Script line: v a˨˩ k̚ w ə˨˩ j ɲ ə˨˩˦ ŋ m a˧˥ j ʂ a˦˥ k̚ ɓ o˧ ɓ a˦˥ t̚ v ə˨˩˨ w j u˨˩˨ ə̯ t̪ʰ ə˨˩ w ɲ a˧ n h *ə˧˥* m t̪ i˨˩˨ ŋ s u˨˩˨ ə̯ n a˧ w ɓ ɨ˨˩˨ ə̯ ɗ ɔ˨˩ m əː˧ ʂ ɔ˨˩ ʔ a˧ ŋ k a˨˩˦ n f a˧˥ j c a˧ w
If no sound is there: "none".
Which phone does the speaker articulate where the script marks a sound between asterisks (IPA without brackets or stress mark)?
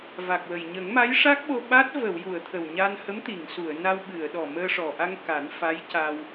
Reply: ə˧˥